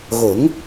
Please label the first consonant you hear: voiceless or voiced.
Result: voiced